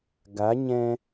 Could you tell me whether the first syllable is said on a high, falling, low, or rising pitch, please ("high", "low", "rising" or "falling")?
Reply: rising